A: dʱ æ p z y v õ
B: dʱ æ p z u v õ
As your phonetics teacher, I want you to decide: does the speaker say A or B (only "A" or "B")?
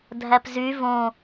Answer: A